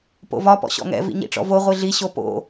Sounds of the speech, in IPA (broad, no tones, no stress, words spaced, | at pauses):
po̰vɒ pɔ̰ɕɔ̰ŋɛ̰ vḭɲḭʈ͡ʂɔ̰vo ʁʷiɮi ɕopo̰